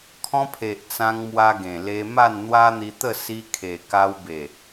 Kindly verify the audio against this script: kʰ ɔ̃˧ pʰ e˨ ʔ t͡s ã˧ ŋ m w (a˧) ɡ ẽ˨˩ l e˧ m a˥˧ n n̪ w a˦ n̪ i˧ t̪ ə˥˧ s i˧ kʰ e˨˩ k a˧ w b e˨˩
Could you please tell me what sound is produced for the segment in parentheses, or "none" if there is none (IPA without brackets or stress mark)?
a˧